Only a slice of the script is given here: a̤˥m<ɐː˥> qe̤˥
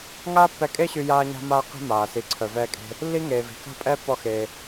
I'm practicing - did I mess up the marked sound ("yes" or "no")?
yes